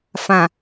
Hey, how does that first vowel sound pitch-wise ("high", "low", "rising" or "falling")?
low